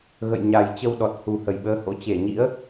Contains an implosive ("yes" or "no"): yes